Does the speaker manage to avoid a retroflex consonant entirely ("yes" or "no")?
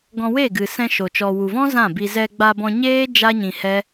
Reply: yes